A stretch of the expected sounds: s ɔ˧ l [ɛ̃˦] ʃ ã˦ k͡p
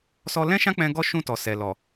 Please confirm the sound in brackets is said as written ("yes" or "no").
yes